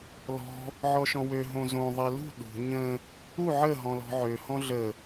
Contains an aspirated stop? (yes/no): no